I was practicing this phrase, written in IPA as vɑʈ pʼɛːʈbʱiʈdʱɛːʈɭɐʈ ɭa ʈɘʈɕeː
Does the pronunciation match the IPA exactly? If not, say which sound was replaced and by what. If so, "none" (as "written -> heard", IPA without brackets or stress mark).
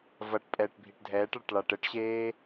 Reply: ɑ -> ɐ